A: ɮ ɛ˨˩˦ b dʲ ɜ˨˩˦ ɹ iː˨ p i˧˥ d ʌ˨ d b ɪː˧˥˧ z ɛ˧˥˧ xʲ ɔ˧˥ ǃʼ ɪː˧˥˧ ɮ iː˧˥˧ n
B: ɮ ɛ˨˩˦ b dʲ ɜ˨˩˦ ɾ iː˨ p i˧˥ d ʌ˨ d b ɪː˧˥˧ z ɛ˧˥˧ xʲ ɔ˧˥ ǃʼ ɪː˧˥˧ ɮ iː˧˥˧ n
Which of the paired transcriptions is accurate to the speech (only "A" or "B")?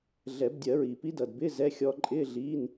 A